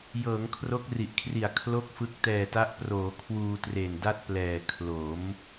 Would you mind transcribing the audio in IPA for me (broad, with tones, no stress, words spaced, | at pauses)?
jɤː˩˦ŋkʰro˦˥k̚ri˨˩ʔkʰri˨˩a̯ kʰlo˥˩k̚fɯ˦˥k̚ tɛː˨˩ta˦˥ʔproː˩˦ kʰwuː˧tre˨˩nda˥˩t̚plɛː˨˩ kʰlo˩˦m